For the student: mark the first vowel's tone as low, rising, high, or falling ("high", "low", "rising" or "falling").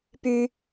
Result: high